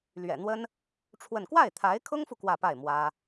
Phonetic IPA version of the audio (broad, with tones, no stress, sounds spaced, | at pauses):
l ɥ ɛ̰˨˩ n̪ w ə˥ n | ʈ͡ʂʰ w ə˥˧ n k w a˥˩ ɪ̯ t̪ʰ a˧˥ ɪ̯ kʰ ʊ˥ ŋ f u˨ k w ä˥˧ p a˥˩ ɪ̯ m w ä˥